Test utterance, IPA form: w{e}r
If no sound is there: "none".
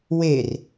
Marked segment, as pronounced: e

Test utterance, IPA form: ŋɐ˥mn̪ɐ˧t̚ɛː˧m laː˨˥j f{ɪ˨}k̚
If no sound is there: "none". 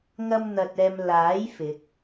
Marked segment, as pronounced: ɪ˨˥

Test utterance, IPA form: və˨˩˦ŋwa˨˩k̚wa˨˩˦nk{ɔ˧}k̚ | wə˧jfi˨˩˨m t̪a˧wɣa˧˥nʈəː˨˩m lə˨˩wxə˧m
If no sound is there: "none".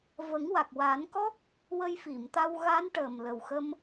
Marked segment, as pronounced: ɔ˦˥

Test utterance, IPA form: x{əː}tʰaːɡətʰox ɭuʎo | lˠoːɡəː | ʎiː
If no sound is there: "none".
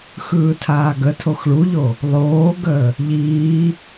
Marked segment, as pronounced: ɯː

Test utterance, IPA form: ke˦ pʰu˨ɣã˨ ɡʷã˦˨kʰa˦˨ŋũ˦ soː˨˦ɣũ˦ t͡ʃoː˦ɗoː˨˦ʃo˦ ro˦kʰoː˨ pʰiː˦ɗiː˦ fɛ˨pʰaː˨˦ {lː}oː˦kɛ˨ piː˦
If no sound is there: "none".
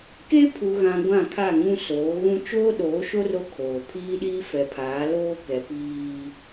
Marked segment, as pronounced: l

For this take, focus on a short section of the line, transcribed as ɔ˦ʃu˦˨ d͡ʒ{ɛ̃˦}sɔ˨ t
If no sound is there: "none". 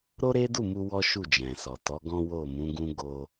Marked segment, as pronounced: ɛ̃˨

